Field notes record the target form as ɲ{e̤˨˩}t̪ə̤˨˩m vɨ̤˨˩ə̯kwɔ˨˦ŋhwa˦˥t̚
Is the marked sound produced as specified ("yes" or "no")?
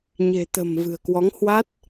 yes